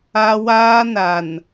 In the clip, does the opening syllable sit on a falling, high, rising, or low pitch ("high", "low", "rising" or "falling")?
high